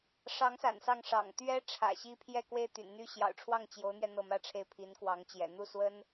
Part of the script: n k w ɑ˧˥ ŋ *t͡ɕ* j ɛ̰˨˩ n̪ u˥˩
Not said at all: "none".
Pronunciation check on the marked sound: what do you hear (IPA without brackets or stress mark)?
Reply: t͡ɕ